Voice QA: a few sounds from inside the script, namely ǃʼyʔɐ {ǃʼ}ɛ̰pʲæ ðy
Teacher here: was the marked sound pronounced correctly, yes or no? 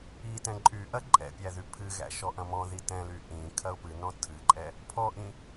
yes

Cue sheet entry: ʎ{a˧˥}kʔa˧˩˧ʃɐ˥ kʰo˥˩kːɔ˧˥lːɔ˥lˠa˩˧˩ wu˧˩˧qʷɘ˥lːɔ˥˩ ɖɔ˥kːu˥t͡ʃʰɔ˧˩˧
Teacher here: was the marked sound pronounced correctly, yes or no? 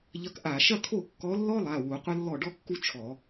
no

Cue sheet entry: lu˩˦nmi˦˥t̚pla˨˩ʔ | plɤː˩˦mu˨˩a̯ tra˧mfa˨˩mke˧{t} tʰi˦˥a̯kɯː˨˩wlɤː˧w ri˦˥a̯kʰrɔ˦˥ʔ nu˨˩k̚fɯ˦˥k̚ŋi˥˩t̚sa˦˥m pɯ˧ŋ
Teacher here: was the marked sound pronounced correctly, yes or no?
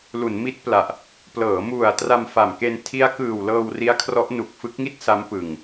no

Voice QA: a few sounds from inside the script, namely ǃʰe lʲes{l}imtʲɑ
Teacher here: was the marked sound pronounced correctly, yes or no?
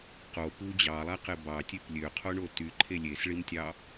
no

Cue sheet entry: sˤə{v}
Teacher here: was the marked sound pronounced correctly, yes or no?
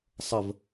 yes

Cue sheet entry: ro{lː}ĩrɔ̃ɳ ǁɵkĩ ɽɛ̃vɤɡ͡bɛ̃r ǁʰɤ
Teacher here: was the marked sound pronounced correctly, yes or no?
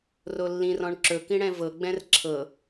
yes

